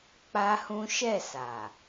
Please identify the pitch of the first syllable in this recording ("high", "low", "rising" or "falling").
high